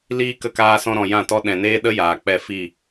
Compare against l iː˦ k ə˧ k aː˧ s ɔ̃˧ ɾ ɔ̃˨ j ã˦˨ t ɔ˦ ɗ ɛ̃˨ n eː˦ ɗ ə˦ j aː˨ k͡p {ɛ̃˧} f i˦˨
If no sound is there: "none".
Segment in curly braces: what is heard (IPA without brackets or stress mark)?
ɛ˧